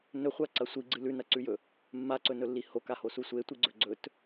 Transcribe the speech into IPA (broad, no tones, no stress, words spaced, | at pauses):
nɵχʷaǀɐ sʷiɡ͡ǀɨ lʉnɐǀʉjɵ | mːaǀɵnɵlːi hokahosu sʷetʷiɡ͡ǀɵ ɡ͡ǀɵt